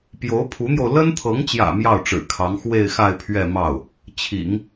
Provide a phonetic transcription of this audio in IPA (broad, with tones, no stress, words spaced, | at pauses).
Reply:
pjo˧˥ʊ̯pʰu˧˥n̪jo˧ʊ̯ lə˥nt̪ʰɤ˧˥ŋt͡ɕjä̰˨˩ mjɑ˥˩ʊ̯ʈ͡ʂɻ̩˨˩kʰɑ˧˥ŋ xwe˥˧ɪ̯xa˥˧ɪ̯pʰɥɛ˥˧ mɑ˥˩ʊ̯ | t͡ɕʰḭ˨˩˦ŋ